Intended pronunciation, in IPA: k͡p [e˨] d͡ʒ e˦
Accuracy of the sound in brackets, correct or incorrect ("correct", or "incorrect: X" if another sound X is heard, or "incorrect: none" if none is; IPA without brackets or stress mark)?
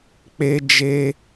incorrect: e˦